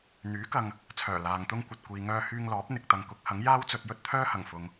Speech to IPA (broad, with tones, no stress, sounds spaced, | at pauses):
n̪ yː˨˥ k ɐ˨ ŋ | t͡sʰ œː˨˩ l aː˨ ŋ t̪ ʊ˥ ŋ kʷ ɐ˨ t̚ kʷ iː˨ ŋ œː˧ h yː˧ ŋ l ɔː˨˥ p̚ n̪ ɪ˨ k̚ t̪ ɐ˨ ŋ k ʊ˨˥ k̚ h ɐ˨˥ ŋ j aː˥ w t͡s ɵ˧ t̚ j ɵ˥ t̚ t̪ʰ œː˥ h ɐ˨˩ ŋ f ʊ˨ ŋ